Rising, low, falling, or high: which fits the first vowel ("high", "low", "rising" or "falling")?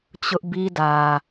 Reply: high